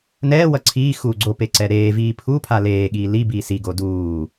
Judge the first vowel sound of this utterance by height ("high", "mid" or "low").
mid